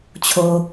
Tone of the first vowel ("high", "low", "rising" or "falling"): low